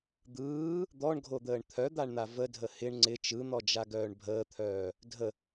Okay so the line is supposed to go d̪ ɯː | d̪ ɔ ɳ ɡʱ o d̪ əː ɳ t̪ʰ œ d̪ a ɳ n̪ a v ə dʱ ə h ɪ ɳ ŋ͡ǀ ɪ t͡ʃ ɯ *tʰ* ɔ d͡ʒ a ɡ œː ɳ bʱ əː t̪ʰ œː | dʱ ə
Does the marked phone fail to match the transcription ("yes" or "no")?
yes